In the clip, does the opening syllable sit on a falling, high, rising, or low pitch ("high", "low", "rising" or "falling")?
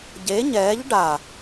rising